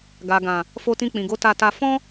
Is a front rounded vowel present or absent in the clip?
absent